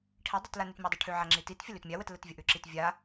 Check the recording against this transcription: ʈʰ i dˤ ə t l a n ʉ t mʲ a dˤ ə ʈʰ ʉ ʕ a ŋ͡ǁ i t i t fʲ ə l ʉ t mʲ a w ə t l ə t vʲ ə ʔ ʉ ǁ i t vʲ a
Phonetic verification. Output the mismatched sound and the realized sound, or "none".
none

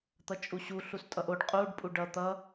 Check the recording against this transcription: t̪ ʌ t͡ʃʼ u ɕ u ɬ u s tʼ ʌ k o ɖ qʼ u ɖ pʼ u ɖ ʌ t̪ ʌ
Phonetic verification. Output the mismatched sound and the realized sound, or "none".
k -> ʔ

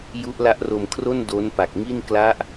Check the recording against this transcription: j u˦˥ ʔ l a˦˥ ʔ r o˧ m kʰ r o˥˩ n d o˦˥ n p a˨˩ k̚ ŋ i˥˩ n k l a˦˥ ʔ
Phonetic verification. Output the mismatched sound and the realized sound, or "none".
none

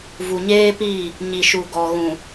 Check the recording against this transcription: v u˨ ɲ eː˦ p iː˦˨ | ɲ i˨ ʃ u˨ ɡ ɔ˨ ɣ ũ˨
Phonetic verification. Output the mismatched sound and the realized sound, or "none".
none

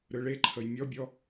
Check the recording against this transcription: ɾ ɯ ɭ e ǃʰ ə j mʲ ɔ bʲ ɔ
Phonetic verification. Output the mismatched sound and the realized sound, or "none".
none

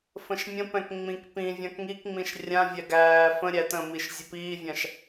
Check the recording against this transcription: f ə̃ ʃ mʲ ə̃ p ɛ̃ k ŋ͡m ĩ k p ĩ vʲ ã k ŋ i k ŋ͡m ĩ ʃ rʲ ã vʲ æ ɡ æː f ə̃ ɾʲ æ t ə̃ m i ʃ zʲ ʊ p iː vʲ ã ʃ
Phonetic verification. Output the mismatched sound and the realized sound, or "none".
none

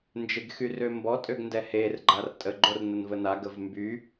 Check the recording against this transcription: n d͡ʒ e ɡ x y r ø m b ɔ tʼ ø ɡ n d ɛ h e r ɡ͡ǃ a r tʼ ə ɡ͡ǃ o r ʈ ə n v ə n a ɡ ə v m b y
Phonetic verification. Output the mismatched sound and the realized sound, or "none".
ʈ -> n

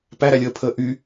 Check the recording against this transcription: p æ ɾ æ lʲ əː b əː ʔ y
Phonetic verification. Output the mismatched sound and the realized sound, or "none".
b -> pʰ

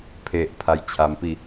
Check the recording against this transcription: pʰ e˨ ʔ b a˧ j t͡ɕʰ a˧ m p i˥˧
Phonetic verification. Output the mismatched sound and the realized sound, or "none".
b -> pʰ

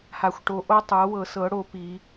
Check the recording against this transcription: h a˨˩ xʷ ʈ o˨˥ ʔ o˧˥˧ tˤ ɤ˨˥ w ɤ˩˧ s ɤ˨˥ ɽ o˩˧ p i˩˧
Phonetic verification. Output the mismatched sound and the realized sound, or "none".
none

